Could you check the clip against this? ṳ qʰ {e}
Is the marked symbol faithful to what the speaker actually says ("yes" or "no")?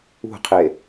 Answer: yes